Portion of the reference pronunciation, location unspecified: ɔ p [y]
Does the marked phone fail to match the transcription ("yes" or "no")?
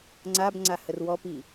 yes